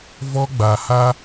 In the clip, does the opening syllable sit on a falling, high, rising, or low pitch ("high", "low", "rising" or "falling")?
high